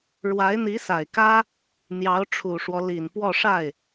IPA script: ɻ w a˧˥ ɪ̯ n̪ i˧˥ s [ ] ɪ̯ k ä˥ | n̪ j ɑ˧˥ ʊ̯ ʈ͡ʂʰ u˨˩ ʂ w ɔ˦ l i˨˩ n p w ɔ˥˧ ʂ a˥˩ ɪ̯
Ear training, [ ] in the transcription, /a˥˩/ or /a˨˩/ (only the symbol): a˨˩